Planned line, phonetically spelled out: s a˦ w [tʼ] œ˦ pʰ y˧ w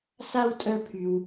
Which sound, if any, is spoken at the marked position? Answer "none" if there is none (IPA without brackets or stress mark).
tʼ